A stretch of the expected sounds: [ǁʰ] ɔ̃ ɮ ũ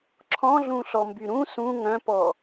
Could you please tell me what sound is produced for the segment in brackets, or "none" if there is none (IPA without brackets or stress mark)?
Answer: ǁʰ